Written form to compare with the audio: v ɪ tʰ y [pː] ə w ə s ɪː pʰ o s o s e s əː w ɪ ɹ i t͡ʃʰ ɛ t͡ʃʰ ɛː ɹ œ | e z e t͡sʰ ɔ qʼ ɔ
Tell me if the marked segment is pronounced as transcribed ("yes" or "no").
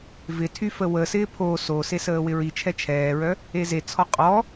no